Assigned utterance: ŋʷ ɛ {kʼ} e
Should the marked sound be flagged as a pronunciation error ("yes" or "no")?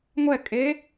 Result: no